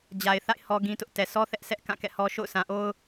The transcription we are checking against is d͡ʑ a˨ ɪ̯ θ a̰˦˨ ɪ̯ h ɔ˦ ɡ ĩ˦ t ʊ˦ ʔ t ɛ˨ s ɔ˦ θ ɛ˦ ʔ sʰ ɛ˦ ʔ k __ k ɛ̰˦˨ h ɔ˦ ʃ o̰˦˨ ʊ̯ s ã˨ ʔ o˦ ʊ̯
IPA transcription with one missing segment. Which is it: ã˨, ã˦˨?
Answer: ã˦˨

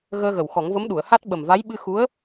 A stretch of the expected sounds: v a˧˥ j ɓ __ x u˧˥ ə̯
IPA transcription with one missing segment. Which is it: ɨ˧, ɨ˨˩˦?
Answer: ɨ˧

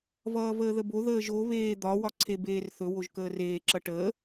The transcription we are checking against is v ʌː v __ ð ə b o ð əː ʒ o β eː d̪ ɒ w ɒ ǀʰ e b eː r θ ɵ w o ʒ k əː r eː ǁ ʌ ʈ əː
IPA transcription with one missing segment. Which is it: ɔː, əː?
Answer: əː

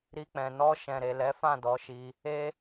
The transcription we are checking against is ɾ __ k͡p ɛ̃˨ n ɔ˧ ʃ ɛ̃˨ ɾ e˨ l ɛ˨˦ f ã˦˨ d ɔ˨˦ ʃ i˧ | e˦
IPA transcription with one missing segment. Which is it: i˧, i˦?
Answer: i˧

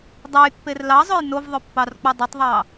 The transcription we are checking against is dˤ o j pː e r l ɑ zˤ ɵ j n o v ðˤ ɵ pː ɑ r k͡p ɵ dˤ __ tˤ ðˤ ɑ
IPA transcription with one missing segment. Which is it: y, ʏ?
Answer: ʏ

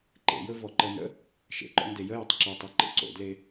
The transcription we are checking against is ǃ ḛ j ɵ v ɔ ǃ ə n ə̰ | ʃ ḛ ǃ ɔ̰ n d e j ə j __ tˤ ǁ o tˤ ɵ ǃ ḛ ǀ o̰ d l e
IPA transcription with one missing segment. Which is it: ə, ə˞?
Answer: ə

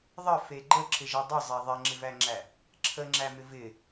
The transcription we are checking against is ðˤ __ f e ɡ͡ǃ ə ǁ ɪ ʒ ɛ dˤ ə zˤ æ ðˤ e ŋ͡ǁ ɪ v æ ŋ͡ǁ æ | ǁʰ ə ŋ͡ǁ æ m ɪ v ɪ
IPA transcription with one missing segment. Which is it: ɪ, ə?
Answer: ə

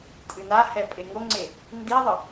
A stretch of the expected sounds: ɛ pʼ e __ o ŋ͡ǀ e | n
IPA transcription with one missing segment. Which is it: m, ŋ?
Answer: ŋ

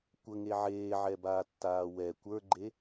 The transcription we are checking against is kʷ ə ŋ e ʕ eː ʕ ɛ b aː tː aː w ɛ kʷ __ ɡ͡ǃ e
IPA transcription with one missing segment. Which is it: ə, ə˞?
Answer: ə˞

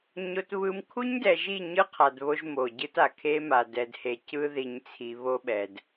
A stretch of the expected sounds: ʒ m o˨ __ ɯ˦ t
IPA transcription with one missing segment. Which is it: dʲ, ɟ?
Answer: ɟ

